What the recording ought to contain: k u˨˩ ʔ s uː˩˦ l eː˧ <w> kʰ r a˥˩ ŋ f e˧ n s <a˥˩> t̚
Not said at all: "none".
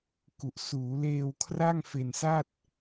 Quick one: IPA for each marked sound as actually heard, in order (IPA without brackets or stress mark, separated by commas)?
w, a˥˩